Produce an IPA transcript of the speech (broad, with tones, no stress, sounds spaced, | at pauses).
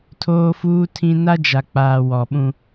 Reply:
tʰ oː˦ f uː˦ tʰ ĩ˦ n a˦ d͡ʒ a˨ k͡p aː˨ w ɔ˨ ɓ ũ˦